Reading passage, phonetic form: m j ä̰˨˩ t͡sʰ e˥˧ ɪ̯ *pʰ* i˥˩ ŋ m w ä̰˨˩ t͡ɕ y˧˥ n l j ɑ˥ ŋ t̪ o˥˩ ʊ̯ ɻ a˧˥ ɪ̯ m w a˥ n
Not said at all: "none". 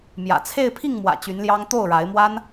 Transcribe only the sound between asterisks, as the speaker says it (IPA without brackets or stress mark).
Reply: pʰ